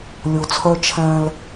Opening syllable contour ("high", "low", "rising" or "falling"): low